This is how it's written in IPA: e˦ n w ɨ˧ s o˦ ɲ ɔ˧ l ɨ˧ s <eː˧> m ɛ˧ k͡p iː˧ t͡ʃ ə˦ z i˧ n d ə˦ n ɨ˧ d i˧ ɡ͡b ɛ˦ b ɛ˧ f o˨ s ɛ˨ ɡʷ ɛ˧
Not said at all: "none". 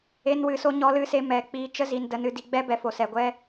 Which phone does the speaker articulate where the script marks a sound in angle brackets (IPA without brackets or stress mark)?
e˧